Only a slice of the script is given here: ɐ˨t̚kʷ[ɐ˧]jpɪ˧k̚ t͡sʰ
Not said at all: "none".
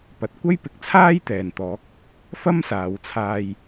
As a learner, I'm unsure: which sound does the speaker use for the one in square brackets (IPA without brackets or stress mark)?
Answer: ɐ˥